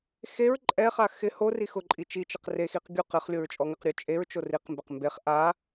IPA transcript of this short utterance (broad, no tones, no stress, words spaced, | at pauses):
xeɹ ǃʼɛχa xɪ hori xʊǃʼi t͡ʃit͡ʃɪq rexiq ɡʲu qɪχ lʲoɹt͡ʃʼɔŋɪqɾʲo t͡ʃʼeɹt͡ʃo riqmbɪq mbeχ ʔa